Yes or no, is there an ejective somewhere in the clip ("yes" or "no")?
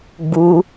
no